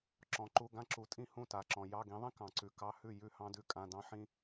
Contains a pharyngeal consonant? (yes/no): yes